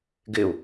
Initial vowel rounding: unrounded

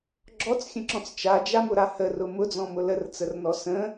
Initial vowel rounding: rounded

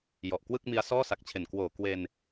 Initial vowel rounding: rounded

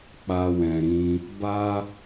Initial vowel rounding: unrounded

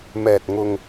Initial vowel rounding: unrounded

